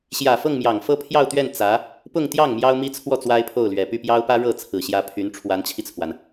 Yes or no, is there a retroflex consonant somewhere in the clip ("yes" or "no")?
yes